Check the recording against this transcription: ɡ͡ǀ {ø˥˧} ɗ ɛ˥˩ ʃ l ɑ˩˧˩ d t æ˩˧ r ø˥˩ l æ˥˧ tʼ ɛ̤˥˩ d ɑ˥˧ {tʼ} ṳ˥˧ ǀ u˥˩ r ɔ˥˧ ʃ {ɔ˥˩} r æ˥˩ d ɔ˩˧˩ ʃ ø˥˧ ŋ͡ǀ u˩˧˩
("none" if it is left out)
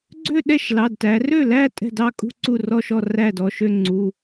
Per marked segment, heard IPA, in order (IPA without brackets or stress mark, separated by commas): ø˥˧, kʼ, ɔ˥˩